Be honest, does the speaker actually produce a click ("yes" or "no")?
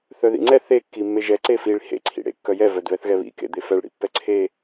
yes